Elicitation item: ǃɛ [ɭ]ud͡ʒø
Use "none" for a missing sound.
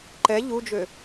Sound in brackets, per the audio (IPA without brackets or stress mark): ʎ